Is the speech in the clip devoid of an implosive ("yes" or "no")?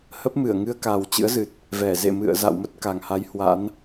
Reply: yes